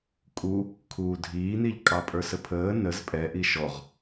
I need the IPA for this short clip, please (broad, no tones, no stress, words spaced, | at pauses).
kʼu | kʰuːdʱiːniʎ kʼɑpʼə˞səpʰəː nəz pʼɛʔi ʃɔʁ